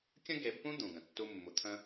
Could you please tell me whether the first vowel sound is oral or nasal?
nasal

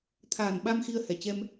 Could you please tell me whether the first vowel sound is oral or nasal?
oral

